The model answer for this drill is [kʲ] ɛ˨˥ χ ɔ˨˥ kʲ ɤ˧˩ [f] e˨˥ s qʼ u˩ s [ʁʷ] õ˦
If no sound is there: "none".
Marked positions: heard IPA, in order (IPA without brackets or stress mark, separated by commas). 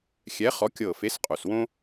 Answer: xʲ, f, w